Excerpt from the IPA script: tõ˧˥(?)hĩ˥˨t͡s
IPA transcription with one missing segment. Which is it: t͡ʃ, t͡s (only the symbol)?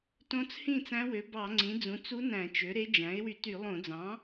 t͡s